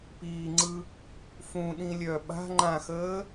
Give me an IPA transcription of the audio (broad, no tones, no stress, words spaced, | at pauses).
piːŋ͡ǀɯ | fũɗĩ lʲœ ɓa̤ ŋ͡ǃãxəː